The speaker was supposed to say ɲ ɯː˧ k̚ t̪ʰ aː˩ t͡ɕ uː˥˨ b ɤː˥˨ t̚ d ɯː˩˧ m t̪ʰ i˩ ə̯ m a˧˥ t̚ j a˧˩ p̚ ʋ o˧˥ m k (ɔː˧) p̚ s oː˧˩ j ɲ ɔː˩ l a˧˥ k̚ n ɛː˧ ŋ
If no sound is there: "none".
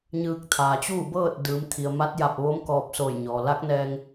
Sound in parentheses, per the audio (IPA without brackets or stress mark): ɔː˧